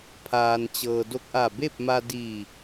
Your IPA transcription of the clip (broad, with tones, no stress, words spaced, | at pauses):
pʰaː˩nt͡ɕɤː˩ do˧k̚ʔa˧˩be˥˨p̚ma˧ diː˧˩